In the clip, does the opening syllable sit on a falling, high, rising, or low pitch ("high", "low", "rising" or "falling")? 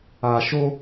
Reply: low